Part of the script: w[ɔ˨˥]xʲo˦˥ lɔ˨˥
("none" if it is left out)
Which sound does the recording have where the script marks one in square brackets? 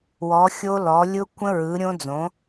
ɔ˨˥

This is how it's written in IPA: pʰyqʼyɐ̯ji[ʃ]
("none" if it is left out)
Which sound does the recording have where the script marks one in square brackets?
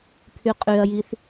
θ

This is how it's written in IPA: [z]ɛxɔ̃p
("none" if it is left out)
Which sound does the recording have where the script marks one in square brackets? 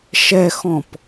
ʃ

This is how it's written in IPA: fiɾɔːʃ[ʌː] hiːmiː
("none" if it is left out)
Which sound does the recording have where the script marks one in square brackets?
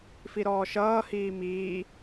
ʌː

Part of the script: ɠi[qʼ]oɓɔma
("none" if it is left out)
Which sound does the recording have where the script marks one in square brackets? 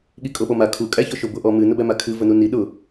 kʼ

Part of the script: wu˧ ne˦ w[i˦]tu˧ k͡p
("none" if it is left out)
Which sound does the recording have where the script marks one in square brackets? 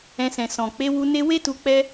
e˦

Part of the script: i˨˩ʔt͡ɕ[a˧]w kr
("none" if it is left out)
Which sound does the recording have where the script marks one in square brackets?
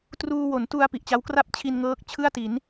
a˦˥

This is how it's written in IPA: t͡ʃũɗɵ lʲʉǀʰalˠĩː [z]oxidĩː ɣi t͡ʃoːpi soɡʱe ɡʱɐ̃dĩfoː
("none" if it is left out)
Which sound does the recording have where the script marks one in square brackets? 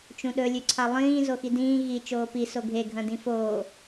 z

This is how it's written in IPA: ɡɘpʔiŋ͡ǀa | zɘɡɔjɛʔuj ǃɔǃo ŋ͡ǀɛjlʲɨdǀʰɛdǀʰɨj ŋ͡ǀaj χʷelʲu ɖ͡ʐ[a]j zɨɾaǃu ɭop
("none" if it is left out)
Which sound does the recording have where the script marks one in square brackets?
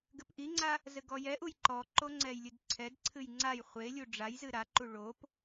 a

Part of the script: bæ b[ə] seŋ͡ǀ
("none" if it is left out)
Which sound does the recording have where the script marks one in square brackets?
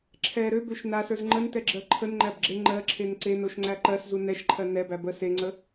ə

